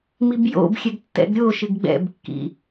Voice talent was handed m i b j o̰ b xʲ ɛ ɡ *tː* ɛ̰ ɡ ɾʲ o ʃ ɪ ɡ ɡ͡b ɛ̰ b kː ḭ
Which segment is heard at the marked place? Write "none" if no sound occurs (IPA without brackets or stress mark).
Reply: tː